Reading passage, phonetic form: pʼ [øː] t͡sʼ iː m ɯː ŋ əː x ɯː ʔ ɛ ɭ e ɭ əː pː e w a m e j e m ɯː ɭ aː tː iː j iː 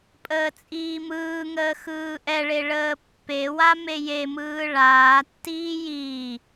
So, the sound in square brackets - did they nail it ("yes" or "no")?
no